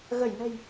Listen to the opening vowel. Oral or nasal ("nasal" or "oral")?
oral